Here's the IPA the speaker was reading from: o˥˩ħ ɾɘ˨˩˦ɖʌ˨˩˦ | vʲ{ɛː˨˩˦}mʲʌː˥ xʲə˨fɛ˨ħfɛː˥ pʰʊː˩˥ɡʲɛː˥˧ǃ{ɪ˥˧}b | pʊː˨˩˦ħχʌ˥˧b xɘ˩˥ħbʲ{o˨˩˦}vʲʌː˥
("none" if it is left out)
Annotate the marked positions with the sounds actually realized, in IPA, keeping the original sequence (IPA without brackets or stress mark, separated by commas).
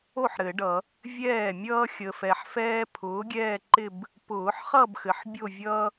ɛː˥˩, ɪ˥˧, o˥˧